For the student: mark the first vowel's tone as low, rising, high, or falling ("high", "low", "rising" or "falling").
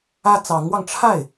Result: high